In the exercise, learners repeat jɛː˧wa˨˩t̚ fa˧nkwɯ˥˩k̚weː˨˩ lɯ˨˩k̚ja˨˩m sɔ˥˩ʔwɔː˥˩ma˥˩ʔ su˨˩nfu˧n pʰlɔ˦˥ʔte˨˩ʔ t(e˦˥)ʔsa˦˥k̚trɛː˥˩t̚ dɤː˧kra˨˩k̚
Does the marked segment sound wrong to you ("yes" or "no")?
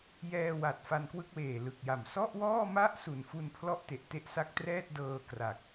no